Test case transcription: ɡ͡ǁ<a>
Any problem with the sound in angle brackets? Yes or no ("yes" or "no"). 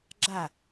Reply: no